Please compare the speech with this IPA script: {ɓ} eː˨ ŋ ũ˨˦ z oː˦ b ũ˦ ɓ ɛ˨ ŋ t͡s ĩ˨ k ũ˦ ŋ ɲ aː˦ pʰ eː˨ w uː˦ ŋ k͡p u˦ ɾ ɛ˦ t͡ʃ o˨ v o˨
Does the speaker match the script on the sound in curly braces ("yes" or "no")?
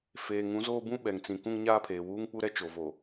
no